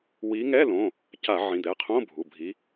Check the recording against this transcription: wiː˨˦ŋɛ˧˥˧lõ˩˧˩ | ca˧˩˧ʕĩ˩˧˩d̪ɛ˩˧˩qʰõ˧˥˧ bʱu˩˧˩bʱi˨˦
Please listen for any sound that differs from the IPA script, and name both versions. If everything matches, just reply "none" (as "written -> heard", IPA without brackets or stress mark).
none